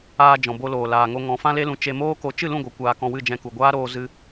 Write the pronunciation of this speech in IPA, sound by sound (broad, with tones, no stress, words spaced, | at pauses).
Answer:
aː˧d͡ʒɔ̃˨ bo˧loː˨laː˨ŋo˧ ŋɔ̃˨˦fã˦le˦lũ˧ t͡ʃe˧moː˦ko˧ t͡ʃɨ˦˨lũ˦˨ ɡʷɨ˨ kʷaː˧kɔ̃˧wɨ˦˨ d͡ʒɛ̃˧ku˨ ɡʷaː˦ɾoː˧ zɨ˧